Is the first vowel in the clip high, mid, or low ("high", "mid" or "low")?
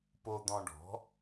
mid